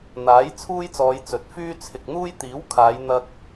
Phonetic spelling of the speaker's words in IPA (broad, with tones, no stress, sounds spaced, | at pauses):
n̪ aː˨˥ j t͡sʰ uː˥ j t͡s ɔː˨˧ j t͡s ɵ˨˥ t̚ f yː˥ t͡sʰ ɪ˨ k̚ n̪ uː˥ j t̪ iː˨˥ w kʰ aː˨˧ j n̪ ɐ˧ k̚